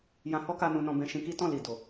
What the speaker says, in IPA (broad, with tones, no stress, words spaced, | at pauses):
jã˧hɔ˦ka˧ nũ˧nɔ̃˧ bɛ̃˧ʃĩ˧ki˦tɔ̃˦˨ li˨do˨